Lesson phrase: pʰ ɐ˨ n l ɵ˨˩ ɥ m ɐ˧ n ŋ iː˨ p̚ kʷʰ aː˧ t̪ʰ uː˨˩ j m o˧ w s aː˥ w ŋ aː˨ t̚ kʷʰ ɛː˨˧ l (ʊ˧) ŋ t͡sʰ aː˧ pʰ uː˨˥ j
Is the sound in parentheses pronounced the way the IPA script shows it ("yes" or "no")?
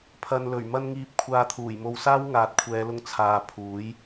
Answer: yes